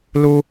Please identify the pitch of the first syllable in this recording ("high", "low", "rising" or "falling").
high